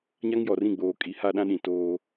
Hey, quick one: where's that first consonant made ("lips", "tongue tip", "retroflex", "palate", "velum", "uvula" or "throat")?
palate